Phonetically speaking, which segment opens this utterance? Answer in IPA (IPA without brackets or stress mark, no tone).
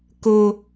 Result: k